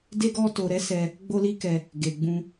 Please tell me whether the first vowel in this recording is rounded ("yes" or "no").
no